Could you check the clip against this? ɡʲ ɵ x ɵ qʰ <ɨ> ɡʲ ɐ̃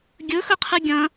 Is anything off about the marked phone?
no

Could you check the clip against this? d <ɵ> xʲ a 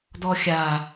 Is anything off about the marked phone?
yes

